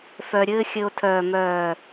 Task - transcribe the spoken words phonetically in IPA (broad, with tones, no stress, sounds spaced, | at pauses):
f œ˧ ɾʲ ɘː˦ xʲ ɘ˧ o̯ tʰ œ˨ m œː˨